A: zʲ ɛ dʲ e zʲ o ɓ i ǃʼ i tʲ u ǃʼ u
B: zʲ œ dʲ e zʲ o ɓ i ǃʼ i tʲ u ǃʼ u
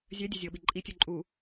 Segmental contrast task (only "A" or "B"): B